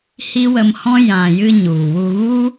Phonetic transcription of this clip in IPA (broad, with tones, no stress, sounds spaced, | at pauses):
h i˦ w ə˧ m h ɔ̃˦ j ã˨ j ɨ˧ ɲ u˨ w u˧ ɣ u˦